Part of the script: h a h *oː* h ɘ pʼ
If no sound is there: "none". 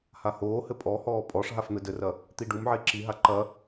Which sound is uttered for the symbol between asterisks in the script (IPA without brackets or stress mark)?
oː